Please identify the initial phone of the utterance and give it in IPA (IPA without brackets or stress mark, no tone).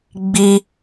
ɡ͡b